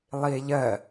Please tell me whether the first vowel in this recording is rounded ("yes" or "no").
no